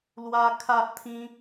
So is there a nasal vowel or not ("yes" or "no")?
yes